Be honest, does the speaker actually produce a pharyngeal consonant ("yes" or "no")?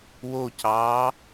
no